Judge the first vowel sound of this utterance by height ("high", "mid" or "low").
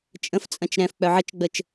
mid